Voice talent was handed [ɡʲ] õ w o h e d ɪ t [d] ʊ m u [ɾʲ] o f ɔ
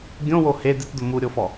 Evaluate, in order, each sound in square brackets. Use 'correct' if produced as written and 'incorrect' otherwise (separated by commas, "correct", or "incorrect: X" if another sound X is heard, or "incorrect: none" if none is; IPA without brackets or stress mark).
correct, correct, correct